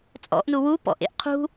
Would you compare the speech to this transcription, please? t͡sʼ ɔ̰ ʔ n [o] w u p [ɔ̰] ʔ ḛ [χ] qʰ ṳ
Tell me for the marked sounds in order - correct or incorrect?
incorrect, correct, incorrect

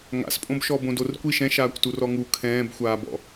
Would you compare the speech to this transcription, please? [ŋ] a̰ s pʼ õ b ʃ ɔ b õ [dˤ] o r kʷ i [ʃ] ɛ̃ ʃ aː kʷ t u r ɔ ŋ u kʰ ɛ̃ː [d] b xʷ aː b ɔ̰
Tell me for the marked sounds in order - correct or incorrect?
correct, incorrect, correct, incorrect

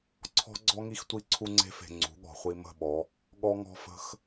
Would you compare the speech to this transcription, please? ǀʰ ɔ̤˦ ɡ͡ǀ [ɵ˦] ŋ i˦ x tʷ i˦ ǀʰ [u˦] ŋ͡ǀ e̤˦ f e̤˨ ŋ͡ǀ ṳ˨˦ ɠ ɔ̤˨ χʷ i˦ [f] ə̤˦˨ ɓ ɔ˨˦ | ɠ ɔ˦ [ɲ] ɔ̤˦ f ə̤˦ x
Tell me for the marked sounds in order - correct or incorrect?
incorrect, correct, incorrect, incorrect

